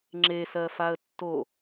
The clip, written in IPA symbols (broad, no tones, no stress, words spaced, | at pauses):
ŋ͡ǁesɜfaə̯ tːo